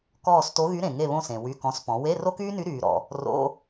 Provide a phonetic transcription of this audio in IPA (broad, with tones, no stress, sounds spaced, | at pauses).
k ɔː˦˨ s t o˧˥ ɣ y˧˥ ɾ ẽ˨ ŋ e˦˨ β õ˦˨ s ẽ˨ w y˧˥˧ k ɔ̃˧˥ s p ɔ̃˩˥ w e˧˥˧ r o˥ k yː˥ n y˧˥ ɾ yː˨ ɾ ɔ̰˨ | r o̰˧˥˧